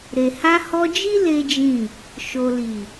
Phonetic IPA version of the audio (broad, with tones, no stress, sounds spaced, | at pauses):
ɾ e˨ h a˧ h ɔ˧ d͡ʒ i˦ l e˦ d͡ʒ ĩ˦˨ | ʃ o˨ l i˨